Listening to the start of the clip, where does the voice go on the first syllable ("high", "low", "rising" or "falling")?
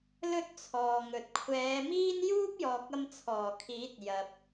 high